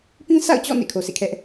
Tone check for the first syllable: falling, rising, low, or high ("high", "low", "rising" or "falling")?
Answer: high